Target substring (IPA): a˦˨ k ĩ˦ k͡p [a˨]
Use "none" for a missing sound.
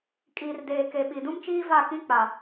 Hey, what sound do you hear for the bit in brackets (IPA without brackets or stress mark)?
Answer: a˨